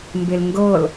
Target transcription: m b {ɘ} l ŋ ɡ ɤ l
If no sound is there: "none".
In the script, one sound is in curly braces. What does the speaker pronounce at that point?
e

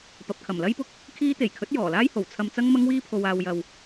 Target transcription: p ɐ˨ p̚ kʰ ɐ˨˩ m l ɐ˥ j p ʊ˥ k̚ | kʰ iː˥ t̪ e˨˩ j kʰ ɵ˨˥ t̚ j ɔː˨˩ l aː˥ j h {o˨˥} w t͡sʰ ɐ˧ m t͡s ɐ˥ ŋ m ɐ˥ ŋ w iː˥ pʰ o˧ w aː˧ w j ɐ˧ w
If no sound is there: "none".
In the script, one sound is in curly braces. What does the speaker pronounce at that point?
o˨˩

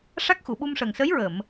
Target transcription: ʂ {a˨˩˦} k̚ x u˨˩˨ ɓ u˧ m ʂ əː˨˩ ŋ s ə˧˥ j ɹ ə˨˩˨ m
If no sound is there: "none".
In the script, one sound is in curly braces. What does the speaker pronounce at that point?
a˦˥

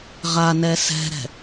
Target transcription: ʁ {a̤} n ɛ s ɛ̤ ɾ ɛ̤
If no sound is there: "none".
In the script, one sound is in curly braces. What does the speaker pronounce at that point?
a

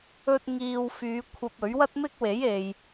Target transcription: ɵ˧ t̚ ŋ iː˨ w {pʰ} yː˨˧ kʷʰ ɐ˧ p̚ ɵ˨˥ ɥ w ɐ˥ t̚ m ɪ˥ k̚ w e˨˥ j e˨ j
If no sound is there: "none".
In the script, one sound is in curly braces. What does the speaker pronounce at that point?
f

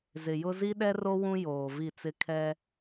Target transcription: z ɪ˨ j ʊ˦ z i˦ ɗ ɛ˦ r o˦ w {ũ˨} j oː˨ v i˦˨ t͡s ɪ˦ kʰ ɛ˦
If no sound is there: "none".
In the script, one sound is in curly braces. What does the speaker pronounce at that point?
ũ˦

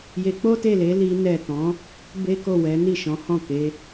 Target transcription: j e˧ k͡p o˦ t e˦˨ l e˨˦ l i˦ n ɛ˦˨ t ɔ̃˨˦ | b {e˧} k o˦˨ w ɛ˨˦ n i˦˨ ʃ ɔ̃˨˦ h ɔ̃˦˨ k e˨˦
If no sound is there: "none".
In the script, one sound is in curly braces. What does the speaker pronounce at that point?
e˦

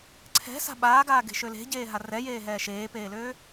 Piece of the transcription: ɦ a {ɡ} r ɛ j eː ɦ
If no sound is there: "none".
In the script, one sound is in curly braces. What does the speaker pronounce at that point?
none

